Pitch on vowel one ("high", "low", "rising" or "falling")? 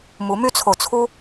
rising